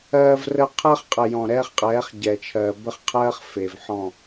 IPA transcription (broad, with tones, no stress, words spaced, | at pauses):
ɜː˦vrə˦ qʰɜ˦χqʼə˨jɔ̃˨ ɾɛː˦χqʼɛː˨˦χ ɟɛ˨t͡ʃʰɜː˨ bə˦χqʰɜː˦χ fe˨vħɔ̃˦˨